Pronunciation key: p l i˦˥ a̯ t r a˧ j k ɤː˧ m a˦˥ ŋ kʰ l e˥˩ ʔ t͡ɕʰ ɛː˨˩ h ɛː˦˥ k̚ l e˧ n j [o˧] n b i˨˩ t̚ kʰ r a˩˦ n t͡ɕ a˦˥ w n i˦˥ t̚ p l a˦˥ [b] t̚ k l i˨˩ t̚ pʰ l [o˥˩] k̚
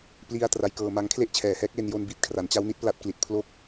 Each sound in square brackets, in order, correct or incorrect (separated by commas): correct, incorrect, correct